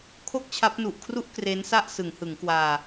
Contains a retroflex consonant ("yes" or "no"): no